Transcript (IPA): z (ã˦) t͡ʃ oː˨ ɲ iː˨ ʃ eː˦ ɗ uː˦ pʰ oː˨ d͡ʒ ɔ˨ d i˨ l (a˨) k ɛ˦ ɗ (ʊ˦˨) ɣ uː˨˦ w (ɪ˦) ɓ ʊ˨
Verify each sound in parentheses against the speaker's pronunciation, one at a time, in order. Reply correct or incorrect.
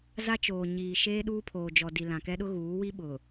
incorrect: a˦, incorrect: ã˨, incorrect: ʊ˦, incorrect: i˦

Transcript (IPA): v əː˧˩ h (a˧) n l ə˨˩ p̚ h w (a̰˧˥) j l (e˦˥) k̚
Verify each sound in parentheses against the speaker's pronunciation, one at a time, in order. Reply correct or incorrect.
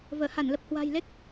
incorrect: a˧˩, incorrect: a̤˨˩, correct

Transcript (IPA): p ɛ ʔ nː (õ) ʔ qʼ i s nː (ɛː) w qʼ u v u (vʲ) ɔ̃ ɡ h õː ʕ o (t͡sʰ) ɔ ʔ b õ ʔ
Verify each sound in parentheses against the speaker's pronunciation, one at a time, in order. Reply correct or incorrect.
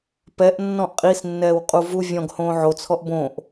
incorrect: ɔ̃, correct, correct, correct

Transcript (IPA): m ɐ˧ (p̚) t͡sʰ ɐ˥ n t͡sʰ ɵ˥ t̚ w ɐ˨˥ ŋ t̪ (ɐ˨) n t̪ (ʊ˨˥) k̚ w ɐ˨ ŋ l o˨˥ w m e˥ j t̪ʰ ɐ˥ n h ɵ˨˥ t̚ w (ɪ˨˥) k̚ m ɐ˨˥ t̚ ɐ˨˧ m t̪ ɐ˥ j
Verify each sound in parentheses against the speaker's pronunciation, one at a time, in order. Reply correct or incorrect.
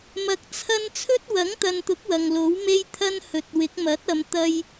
incorrect: k̚, correct, correct, correct

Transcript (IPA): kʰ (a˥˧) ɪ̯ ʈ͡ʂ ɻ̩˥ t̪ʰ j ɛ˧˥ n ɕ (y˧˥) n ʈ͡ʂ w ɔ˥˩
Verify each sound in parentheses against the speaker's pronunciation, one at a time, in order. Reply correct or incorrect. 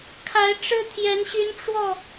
incorrect: a˧˥, correct

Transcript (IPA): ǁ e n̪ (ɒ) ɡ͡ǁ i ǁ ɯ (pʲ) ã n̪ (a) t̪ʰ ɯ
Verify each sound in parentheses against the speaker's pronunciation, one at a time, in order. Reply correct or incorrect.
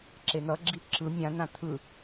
incorrect: ʌ, incorrect: mʲ, incorrect: ã

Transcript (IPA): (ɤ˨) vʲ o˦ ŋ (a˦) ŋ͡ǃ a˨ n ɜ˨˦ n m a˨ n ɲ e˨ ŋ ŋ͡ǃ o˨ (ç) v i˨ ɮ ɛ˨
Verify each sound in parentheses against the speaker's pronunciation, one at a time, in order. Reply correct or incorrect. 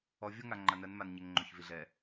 incorrect: ɔ˨, incorrect: a˨, correct

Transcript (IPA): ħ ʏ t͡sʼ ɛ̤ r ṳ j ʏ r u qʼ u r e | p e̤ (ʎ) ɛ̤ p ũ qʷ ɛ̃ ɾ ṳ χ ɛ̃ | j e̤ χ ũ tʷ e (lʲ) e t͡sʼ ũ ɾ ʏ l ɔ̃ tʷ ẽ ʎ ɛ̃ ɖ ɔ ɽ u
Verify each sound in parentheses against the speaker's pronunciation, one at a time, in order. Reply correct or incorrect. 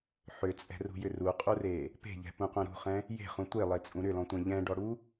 correct, incorrect: lˠ

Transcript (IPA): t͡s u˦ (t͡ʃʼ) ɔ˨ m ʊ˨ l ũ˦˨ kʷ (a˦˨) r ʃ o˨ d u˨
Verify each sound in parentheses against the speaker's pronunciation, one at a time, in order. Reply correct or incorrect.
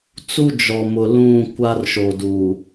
incorrect: d͡ʒ, incorrect: a˦

